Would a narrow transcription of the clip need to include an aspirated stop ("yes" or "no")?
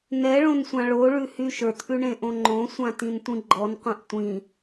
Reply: no